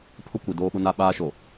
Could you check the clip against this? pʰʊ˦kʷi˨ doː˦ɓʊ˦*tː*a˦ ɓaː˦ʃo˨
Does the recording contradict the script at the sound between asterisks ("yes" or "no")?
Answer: yes